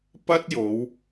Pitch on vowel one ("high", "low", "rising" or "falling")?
high